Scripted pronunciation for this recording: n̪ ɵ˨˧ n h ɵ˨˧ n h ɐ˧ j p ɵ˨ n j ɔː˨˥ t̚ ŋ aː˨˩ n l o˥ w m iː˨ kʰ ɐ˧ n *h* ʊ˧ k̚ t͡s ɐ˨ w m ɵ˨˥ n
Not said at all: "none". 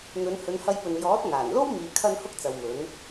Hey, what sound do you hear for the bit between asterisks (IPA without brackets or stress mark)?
h